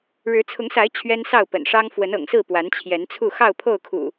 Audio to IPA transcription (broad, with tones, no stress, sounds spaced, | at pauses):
ɻ ɻ̩˨˦ t͡sʰ ʊ˨˦ ŋ s a˨˦ ɪ̯ t͡ɕʰ ɥ ɛ˦ n s ɑ˥˨ ʊ̯ p ə̰˨˩ n ʂ ɑ˦ ŋ f w ə˨˦ n ɤ̰˨˩ ŋ s ɹ̩˥˨ p w a˨˦ n t͡ɕʰ j ɛ˨˦ n t͡sʰ u˥˨ x ɑ˥˨ ʊ̯ pʰ o˥˨ ʊ̯ kʰ ṵ˨˩